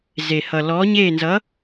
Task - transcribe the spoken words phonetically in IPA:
z e˧ h ʌ˧ l ɔː˧˥ ɲ eː˥˧ n z ʌ˧˥

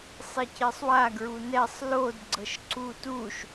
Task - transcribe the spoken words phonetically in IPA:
sˤ i c e sˤ w a ɡ ɹ u n ɛ sˤ l o d ɡ͡ǀ ɤ ʃ ǀ u t u ʃ

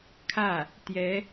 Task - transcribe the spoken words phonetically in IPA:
kʰ ä˥˩ | t̪ j ɛ˧˥

